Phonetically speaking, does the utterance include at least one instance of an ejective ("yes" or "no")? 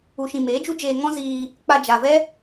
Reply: no